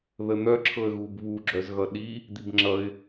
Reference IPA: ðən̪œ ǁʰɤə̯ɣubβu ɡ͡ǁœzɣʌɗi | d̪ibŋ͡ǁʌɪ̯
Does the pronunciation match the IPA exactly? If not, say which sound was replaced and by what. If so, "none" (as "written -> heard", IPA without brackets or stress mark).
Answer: none